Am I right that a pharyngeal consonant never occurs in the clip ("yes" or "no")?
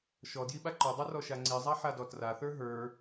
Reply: no